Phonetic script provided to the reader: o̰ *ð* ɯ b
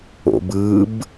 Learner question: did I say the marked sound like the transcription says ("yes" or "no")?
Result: no